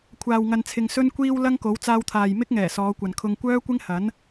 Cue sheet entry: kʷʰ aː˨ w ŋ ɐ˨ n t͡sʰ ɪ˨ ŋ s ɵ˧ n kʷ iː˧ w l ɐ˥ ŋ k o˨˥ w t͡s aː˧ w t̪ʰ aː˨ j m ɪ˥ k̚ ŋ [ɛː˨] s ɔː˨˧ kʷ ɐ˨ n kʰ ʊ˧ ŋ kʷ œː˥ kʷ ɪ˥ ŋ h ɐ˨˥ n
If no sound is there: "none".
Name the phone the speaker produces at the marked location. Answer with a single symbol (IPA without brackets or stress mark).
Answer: ɛː˨˩